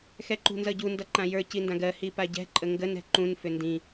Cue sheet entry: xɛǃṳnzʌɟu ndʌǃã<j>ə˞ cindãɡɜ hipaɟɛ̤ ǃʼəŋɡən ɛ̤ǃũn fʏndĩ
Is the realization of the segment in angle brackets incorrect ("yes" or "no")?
no